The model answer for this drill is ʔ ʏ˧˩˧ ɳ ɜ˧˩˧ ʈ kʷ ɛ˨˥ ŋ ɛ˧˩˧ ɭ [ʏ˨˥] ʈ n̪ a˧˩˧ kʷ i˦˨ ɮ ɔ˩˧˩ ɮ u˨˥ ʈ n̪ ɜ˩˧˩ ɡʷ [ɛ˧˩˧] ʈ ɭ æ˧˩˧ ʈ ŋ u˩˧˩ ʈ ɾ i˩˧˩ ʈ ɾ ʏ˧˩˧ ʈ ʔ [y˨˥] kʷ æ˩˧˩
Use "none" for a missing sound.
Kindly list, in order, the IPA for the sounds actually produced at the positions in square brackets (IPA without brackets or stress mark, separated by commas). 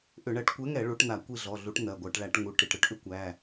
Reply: u˨˥, ɜ˧˩˧, ʏ˨˥